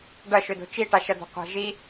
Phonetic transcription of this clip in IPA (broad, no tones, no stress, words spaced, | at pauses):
ɖɐʃødo̤ t͡ʃiʈaʃɐd̪o̤ qʷa̤ʒi